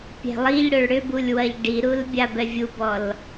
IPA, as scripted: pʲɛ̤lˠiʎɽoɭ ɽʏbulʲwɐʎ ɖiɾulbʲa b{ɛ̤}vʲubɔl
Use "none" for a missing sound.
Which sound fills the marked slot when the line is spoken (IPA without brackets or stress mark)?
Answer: ɛ